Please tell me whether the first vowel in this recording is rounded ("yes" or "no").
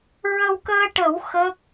no